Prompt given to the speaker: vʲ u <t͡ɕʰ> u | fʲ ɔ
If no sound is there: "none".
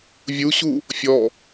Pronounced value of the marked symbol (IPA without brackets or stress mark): ɕ